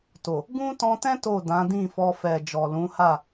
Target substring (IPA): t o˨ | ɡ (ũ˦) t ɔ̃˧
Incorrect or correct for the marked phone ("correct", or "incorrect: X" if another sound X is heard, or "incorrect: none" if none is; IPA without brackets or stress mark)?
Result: correct